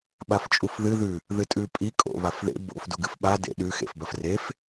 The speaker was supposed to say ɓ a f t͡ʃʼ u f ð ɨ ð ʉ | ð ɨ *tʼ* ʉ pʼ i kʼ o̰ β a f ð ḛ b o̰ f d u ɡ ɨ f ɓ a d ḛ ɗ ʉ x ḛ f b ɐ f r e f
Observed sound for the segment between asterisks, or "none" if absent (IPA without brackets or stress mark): tʼ